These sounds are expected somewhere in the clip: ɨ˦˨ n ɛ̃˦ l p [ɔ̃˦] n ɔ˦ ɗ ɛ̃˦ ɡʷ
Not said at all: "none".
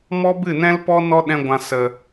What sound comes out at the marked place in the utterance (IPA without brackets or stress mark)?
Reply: ɔ˦